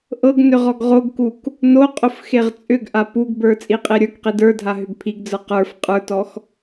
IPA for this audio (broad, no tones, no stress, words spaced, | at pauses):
ʔɤɡ nʏʁɔɡʁoɡkuk | noqʼʊf xeʁt͡sʼʏɡʔa puɡbə˞ t͡sʼiqʼeɾʲə˞kqid ə˞dʱa ɦʏɡpʰiɡd͡zə˞ qə˞f qʼə˞tɔx